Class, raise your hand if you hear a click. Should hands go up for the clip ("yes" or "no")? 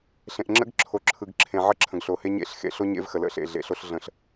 yes